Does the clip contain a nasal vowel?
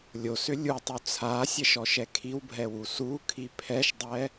no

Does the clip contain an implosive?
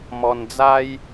no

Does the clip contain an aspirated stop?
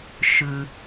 no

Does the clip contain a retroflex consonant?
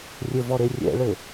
yes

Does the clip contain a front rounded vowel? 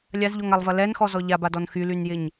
yes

